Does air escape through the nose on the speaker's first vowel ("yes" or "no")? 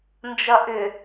no